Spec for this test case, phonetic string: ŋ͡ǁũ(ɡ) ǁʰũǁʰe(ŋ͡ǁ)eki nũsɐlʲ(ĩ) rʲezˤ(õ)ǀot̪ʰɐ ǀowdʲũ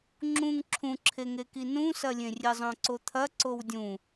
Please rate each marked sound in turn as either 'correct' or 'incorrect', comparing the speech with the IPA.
incorrect: ŋ, incorrect: ŋ, incorrect: ẽ, correct

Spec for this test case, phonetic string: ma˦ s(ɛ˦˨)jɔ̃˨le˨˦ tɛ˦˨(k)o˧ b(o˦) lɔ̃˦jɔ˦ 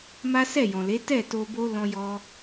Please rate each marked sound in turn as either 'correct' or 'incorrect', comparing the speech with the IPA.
correct, incorrect: t, correct

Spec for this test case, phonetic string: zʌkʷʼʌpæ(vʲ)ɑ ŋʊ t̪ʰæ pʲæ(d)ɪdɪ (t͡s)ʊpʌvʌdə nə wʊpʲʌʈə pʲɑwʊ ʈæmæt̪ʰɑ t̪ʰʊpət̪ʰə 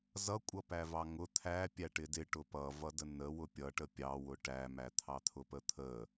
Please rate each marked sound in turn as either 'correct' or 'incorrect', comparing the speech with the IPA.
incorrect: v, incorrect: ʈ, incorrect: ʈ

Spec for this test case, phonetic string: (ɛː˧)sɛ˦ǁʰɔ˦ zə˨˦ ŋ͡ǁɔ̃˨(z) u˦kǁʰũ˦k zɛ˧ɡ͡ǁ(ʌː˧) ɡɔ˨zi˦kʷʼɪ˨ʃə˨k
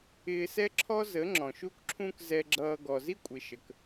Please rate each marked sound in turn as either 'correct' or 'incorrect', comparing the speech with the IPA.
incorrect: ɪː˧, incorrect: ʃ, correct

